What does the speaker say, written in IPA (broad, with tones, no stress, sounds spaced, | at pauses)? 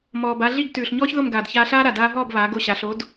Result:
m ɔː˩ b a˧ ɮ i˥˩ ɡ t ʉː˩ ɬ ɲ ɔː˥ ç ð o˥˩ m ɡ aː˩ d ç aː˧ ɬ aː˥ ɾ a˩ d aː˧ ɦ ɔː˥˩ b β aː˩˥ ɡ o˥˩ ɕ a˩˥ ɬ o˩˥ d